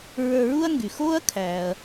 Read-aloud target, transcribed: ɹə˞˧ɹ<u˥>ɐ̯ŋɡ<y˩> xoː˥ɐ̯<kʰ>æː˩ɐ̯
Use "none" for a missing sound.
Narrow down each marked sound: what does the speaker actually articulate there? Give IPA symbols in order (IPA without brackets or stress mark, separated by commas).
u˥, y˩, kʰ